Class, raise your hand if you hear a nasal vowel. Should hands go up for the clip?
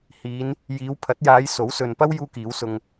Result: no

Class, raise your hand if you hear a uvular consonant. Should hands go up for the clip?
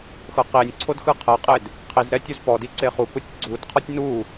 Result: yes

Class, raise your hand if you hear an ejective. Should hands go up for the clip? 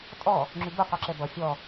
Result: yes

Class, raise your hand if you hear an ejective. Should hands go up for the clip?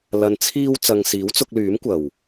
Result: no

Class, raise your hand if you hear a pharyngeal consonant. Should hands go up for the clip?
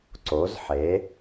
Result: yes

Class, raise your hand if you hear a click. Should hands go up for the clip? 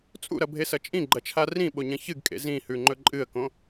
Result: yes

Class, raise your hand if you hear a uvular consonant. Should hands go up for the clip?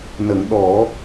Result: no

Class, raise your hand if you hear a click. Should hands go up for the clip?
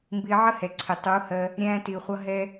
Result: yes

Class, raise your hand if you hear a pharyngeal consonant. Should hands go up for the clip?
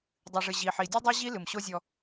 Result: yes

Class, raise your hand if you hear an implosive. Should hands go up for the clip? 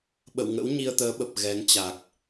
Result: yes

